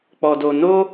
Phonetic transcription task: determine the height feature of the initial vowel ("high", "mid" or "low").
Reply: mid